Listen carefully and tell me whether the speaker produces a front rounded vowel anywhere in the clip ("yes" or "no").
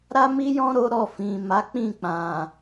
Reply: no